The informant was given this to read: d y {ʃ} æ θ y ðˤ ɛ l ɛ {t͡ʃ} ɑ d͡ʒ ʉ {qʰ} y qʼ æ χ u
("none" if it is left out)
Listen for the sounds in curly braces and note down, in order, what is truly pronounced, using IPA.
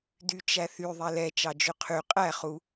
t͡ʃ, t͡ʃ, qʰ

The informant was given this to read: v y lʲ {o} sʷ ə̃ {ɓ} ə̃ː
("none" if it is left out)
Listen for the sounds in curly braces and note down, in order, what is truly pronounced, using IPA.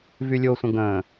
o, ɡ

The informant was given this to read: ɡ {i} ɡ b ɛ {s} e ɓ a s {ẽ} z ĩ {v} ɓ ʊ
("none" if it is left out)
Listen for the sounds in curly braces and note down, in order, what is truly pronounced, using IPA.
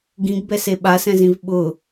ĩ, s, ɛ̃, v

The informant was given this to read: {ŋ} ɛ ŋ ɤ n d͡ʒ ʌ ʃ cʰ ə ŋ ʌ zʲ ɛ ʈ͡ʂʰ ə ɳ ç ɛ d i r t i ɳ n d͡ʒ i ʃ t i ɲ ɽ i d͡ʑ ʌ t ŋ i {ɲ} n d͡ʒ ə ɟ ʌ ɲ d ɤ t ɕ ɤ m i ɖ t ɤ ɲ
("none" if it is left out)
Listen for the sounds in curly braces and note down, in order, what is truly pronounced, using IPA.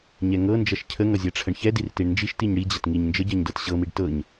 ɲ, ɲ

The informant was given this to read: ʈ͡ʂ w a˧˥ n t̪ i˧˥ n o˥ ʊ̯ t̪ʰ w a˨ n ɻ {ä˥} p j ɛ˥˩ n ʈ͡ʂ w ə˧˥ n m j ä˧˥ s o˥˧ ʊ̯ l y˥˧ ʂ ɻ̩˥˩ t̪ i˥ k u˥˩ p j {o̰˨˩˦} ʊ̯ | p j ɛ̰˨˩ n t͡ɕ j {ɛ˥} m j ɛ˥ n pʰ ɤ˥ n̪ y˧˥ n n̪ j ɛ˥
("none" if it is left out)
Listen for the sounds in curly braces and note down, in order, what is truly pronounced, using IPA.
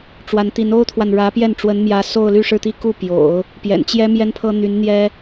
ä˧˥, o̰˨˩˦, ɛ˥

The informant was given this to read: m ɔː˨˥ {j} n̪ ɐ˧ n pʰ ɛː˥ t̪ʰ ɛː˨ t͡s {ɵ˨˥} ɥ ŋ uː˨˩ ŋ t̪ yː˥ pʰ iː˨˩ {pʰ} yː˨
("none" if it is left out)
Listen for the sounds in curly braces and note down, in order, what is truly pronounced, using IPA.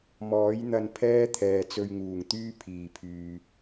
j, ɵ˧, pʰ

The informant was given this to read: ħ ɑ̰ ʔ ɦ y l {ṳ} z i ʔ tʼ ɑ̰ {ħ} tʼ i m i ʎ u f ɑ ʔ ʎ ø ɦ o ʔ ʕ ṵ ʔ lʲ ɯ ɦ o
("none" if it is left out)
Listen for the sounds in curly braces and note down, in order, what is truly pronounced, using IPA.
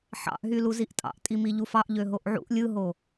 u, ʔ

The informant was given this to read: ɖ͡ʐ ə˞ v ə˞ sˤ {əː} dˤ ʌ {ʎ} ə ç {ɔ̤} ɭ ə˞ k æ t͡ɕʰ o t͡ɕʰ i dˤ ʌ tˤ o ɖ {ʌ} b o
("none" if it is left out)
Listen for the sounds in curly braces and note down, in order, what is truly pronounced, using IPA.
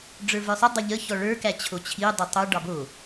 ə, ʎ, ɔ, ɑ

